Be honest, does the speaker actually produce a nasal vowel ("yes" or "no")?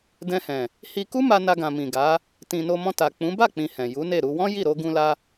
yes